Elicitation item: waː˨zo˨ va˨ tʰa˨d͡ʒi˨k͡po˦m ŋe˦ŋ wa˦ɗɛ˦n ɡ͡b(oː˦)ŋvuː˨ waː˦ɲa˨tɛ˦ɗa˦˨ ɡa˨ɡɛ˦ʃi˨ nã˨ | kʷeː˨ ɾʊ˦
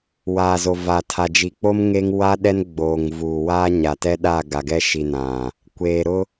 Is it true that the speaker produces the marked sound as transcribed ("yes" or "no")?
no